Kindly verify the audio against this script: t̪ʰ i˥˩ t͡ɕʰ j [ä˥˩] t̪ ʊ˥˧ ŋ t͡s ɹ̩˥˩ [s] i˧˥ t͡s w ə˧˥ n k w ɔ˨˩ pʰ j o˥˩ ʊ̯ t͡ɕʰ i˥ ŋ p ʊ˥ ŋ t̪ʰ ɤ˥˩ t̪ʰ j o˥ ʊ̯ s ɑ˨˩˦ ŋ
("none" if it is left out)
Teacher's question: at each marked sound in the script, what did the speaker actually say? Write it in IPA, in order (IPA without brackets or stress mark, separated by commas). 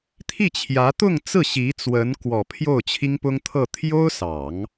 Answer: ä˧˥, ɕ